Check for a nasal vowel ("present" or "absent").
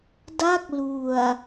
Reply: absent